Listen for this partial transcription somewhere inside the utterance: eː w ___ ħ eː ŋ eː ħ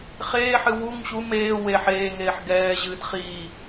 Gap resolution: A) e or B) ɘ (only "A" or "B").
A